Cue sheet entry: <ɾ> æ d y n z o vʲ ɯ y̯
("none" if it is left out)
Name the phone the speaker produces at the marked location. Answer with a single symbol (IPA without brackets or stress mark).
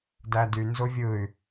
d